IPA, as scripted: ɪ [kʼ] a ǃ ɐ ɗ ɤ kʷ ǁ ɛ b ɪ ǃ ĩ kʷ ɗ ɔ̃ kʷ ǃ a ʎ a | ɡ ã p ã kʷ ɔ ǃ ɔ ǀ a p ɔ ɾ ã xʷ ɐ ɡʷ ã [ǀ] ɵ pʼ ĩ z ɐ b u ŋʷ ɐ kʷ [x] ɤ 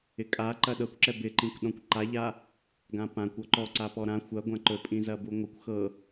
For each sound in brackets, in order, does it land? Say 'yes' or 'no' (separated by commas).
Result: yes, no, yes